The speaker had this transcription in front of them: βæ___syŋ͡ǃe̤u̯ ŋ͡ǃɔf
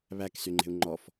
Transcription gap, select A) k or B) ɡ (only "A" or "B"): A